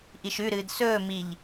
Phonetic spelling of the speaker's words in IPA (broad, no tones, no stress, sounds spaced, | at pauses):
ʔ i ʃ ʉ ɾ ɨː d s ɵː m i ʎ